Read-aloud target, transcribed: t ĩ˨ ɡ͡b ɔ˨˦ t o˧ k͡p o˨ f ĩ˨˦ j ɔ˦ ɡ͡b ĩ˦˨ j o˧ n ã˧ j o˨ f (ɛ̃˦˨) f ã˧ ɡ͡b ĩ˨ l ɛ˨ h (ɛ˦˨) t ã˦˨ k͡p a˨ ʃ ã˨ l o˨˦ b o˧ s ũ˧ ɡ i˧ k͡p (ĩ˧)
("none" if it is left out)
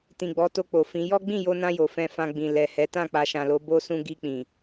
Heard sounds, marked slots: ɛ̃˧, ɛ˨˦, ĩ˨

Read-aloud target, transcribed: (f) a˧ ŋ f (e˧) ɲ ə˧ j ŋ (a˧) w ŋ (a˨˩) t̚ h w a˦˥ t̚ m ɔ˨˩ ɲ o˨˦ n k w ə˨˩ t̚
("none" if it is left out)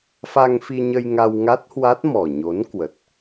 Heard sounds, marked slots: f, i˧, a˧, a˦˥

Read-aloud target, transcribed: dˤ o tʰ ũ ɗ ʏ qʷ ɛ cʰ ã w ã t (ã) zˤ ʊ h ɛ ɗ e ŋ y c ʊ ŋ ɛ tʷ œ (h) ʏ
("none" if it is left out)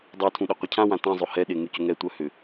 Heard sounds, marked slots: ã, h

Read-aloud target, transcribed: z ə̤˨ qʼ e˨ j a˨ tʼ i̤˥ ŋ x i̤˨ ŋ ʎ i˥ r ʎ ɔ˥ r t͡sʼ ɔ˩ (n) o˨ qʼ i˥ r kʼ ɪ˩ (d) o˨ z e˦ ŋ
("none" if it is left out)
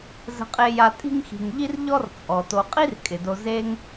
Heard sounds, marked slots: t, d

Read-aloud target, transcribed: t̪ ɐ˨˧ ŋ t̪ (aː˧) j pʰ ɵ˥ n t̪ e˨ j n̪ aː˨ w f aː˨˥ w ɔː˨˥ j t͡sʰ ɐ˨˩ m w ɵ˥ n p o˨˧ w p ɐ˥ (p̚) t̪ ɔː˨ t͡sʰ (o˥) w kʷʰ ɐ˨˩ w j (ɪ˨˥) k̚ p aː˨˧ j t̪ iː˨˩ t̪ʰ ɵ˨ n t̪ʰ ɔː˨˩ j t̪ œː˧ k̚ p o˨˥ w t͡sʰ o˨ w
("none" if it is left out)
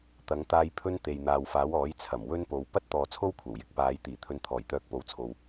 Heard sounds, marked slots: aː˧, t̚, o˥, ɪ˨˥

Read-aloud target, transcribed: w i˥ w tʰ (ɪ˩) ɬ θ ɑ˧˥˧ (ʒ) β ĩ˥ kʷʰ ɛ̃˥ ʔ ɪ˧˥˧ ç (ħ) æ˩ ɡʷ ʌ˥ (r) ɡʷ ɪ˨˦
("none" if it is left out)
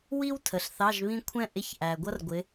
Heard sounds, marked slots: ə˩, ʒ, ʔ, r

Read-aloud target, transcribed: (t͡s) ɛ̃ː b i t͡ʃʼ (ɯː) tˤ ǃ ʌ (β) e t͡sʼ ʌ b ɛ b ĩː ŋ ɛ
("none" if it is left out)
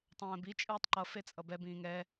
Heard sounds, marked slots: tˤ, ɯː, f

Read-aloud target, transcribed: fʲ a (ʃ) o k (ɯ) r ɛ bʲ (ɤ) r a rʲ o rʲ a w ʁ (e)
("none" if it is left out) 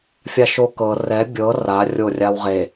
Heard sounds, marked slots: ʃ, ɤ, ɤ, e

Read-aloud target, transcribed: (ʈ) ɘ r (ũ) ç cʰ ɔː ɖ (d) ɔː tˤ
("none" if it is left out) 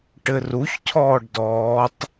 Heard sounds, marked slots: ʈ, u, d

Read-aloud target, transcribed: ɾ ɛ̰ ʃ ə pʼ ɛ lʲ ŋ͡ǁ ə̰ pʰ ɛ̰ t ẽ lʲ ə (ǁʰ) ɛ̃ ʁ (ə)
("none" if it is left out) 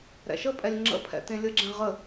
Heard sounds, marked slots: ɡ͡ǁ, ə

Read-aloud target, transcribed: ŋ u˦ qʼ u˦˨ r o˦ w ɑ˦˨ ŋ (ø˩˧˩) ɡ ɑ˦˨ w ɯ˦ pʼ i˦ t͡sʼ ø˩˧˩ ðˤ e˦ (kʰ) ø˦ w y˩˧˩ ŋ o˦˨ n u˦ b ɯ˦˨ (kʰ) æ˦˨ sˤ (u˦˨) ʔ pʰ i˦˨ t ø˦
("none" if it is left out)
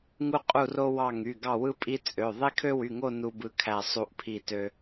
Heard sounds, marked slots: y˩˧˩, kʰ, kʰ, u˦˨

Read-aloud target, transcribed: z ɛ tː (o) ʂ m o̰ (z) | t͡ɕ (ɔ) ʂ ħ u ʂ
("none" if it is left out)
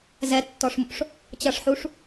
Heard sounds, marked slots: ɔ, ʂ, ʌ

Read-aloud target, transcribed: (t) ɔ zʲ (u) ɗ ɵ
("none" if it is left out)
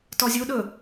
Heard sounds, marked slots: t, u

